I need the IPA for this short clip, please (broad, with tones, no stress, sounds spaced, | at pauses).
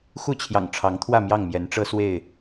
x u˥˨ t͡ɕʰ j ɑ̰˨˩ ŋ ʈ͡ʂʰ ɑ˨˦ ŋ t̪ʰ w ä˥˨ m j ɑ˥˨ ŋ m j ɛ˨˦ n ʈ͡ʂ ɤ˦ s w e˥˨ ɪ̯